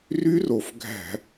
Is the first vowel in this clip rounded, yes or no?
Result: yes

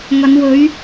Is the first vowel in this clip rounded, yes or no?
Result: no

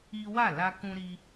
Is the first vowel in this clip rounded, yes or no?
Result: no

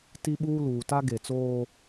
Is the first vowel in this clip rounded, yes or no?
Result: no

